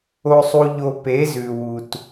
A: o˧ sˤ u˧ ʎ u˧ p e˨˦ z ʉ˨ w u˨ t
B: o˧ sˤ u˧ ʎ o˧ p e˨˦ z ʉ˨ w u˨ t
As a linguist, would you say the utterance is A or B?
B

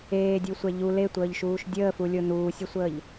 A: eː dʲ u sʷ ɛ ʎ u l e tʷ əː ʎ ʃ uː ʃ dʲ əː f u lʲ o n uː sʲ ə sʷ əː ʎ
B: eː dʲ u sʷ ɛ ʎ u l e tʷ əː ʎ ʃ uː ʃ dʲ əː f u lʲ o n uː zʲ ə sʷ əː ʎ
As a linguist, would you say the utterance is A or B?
A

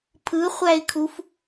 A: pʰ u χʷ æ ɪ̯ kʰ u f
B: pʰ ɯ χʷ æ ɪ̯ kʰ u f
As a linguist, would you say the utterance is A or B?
B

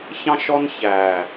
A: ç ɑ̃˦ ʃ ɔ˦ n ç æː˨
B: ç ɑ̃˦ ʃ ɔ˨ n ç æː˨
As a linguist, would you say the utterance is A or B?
A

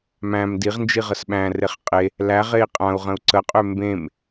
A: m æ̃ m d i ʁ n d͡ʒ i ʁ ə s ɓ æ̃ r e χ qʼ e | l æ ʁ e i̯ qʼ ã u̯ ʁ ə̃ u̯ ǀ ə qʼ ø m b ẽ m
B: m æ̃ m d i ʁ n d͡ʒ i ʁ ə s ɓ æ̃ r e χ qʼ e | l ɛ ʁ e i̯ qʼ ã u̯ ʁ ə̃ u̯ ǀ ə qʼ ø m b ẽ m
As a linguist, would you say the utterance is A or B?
A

